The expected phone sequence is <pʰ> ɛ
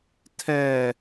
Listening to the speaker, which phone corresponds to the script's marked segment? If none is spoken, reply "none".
tʰ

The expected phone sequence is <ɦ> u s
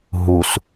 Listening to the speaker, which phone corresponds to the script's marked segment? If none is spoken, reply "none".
ɦ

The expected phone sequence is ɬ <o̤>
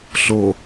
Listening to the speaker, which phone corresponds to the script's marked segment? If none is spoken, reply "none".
o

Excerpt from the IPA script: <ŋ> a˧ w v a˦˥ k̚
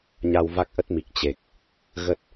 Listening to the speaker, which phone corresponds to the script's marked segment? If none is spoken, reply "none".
ɲ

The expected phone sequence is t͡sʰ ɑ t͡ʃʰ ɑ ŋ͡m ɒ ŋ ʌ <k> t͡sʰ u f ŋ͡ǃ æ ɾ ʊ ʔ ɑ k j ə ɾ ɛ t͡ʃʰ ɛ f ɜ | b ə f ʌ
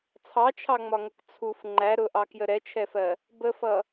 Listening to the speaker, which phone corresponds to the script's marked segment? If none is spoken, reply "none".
k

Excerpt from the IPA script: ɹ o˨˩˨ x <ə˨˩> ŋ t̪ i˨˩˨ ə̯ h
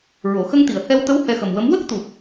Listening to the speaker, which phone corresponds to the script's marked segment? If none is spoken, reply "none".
ə˧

